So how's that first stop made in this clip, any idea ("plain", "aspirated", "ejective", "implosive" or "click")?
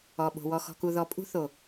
implosive